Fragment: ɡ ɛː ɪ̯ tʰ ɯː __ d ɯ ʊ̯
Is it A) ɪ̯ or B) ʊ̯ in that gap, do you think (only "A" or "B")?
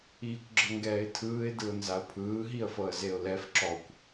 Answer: A